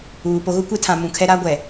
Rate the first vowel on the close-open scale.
close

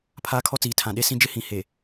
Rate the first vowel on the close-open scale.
open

